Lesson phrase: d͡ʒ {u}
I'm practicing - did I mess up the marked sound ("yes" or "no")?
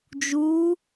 no